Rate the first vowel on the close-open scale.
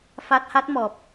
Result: open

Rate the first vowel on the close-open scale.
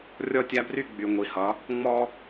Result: mid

